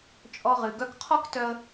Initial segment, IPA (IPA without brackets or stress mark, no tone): t͡ʃʼ